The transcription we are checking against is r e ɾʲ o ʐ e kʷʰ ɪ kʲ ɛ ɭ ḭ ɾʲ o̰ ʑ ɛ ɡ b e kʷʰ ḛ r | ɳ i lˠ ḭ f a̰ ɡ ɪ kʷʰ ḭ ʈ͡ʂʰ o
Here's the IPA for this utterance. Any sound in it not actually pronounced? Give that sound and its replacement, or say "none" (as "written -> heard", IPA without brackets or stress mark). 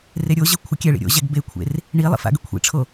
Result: ʐ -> ʑ